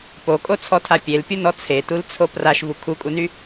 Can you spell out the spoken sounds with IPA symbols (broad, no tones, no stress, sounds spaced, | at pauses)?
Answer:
p o kʼ o t͡sʰ ɔ tʰ a pʲ e l pʲ u n ɔ t͡sʰ e t u l t͡sʰ o p r a ʃ v u kʰ u kʼ u n y